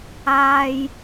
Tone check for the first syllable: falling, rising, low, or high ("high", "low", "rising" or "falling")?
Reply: low